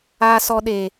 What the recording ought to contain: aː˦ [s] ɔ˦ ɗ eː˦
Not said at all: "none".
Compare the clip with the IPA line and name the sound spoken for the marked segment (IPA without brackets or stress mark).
s